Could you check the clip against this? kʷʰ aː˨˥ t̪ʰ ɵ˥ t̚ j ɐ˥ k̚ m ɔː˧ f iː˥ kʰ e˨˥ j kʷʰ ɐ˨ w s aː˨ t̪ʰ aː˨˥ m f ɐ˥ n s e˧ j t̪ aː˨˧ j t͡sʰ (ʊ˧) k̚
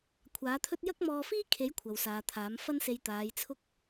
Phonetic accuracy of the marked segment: incorrect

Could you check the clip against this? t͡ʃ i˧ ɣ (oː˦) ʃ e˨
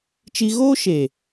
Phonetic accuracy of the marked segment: correct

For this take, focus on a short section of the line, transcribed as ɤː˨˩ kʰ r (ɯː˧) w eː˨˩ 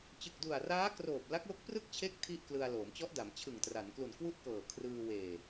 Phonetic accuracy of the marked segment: correct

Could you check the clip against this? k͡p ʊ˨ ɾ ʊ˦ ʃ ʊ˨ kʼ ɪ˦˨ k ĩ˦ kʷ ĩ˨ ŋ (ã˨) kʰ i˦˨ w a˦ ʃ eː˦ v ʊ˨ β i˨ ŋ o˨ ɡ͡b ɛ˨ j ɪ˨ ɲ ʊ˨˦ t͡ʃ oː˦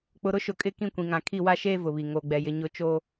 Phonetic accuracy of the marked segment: correct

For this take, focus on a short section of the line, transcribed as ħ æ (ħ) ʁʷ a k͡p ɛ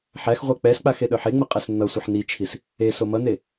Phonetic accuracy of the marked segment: incorrect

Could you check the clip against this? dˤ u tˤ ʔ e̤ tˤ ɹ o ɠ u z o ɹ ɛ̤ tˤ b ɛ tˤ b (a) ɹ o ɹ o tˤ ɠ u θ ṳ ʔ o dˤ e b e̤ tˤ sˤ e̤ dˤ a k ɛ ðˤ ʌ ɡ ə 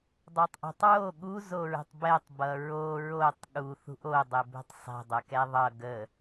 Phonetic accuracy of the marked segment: incorrect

